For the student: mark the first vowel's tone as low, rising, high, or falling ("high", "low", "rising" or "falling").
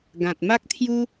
low